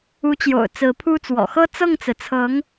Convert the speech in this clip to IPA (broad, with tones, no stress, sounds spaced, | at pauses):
u˧˥ t͡ɕ j o̰˨˩ ʊ̯ t͡s ɹ̩˧˥ pʰ u˥ t͡s w ɔ̰˨˩ x ɤ˥ t͡s ɤ˥˩ ŋ t͡s ɹ̩˩ t͡sʰ ɤ˧˥ ŋ